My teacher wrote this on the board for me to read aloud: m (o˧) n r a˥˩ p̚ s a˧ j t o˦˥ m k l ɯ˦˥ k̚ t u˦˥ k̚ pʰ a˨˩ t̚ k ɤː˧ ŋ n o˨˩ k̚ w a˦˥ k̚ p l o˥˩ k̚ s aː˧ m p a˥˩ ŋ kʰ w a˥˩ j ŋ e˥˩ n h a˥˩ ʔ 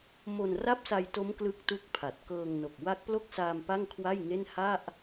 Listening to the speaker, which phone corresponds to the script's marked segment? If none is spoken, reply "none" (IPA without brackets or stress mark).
o˧